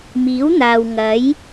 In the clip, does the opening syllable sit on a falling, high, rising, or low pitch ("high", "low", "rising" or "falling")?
rising